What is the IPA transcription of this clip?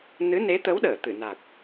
n ɨ˨˦ n e˨˦ t̪ ə˨˦ w ɗ əː˧˩ t̪ ɨ˧˩ n a˨˩ k̚

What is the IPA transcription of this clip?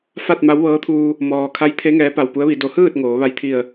f a˥˨ t̚ m a˧˥ w ʋ ɤː˧˥ t̪ʰ uː˧ | m ɔː˩ kʰ a˧˥ j t̪ʰ e˧˥ ŋ ɛː˧˥ p a˧˩ w p u˧˥ ə̯ ʋ i˩˧ d o˩˧ h ɯː˥˨ t̚ ŋ oː˩˧ ʋ a˧ j t̪ʰ i˧˩ ə̯

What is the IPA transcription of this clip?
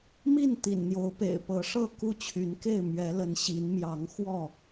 m i˥˨ n t̪ ḭ˨˩ n n̪ j o˨˦ ʊ̯ p ḛ˨˩ ɪ̯ p ɤ˨˦ ʂ ɤ˥˨ k u˥˨ t͡ɕʰ y˨˦ n k e˥˨ ɪ̯ m ɥ ɛ˨˦ l ə˨˦ n ɕ i˨˦ n m j ɑ˨˦ ŋ x w ɔ˥˨

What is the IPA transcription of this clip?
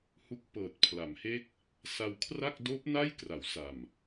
h u˦˥ k̚ p ɤː˨˩ t̚ pʰ l a˩˦ m h e˦˥ k̚ | s a˧ w kʰ r a˥˩ k̚ d oː˦˥ p̚ n a˥˩ j k r a˩˦ w s a˨˩ m

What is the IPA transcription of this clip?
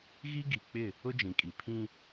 ɣ i˦ ɡ i˨ k͡p ɪ˦˨ | ʊ˦ d͡ʒ ĩ˨ kʼ i˨ pʰ ĩ˦

